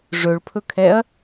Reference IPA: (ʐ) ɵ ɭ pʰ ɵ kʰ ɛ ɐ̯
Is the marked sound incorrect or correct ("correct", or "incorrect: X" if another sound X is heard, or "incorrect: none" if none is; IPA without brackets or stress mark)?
correct